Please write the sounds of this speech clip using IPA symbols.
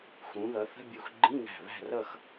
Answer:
xũ˩˧ðʌ˩˧θə̤˧˥˧bʲu˧˩x ɡ͡ǃĩ˧˥˧ŋæ̤˧˩ βæ̤˥˨rʌ˥˨x

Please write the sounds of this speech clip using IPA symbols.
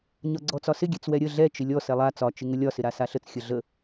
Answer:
ɲɒɡ͡ǀɔt͡sɒsɪ ɡʲɛt͡swɛɾʲə ɮɛ t͡ʃɪlʲɔ sɛlˠa t͡sɒ t͡ʃɪŋəlʲɒ sɪɾasaɬət͡s xʲəɮə

